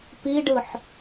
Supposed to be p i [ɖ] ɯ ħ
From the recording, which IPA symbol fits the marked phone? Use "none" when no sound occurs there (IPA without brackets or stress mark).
ɖ